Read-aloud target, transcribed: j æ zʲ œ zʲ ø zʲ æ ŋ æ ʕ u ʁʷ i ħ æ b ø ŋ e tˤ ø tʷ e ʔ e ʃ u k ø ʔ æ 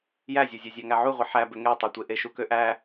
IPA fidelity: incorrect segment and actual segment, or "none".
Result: none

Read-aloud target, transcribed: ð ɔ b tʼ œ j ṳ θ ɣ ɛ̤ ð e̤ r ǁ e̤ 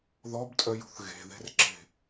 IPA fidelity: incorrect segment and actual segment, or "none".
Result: ɛ̤ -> e̤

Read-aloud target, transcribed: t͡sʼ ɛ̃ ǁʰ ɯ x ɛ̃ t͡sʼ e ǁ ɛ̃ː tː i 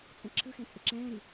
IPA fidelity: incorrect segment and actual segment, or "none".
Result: tː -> ɾ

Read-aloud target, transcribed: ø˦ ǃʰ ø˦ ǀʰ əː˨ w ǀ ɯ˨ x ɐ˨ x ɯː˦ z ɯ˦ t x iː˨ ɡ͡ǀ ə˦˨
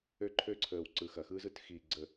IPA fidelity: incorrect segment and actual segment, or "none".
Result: none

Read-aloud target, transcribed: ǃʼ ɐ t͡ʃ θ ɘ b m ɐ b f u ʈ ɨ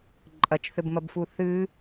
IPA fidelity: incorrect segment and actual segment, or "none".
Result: ʈ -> θ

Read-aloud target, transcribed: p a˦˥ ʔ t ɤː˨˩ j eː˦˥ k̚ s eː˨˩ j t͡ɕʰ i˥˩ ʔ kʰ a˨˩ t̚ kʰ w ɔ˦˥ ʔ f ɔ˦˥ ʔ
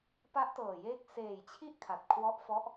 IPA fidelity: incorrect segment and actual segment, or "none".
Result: none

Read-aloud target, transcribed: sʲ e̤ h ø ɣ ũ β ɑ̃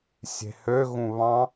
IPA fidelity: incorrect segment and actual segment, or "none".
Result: none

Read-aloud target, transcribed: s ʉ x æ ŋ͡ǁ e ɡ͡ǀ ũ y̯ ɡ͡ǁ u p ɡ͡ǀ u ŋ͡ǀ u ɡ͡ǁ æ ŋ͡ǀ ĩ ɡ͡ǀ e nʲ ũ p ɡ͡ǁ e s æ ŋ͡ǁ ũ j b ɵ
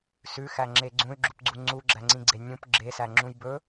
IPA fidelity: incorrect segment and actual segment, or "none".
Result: none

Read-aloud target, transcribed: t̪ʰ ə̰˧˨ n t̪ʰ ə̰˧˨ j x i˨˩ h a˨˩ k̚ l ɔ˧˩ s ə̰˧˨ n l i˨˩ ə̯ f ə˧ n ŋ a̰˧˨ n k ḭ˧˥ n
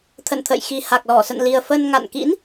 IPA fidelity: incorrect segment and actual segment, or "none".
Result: none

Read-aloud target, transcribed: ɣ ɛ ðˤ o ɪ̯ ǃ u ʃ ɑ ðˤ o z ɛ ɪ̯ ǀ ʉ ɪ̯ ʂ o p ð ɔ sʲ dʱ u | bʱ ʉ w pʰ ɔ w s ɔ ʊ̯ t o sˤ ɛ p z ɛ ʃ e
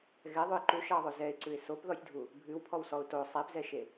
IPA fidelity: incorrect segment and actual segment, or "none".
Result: ʂ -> s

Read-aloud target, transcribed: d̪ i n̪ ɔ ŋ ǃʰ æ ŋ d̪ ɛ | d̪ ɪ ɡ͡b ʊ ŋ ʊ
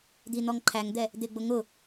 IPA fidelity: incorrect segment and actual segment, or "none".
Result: none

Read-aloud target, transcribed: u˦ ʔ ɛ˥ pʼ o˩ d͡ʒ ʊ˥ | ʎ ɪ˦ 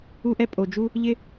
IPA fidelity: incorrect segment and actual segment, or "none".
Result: ʊ˥ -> u˥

